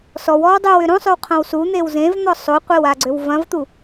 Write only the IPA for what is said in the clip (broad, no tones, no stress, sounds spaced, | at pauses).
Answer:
s ɔ w ɔ w dˤ ø w ʏ ɾ õ sˤ ø w qʰ ɐ̃ w s u n̪ e w z ẽ v n̪ ɔ sˤ o qʷ e w a ɡ͡ǀ ø w v ɐ̃ v t̪ u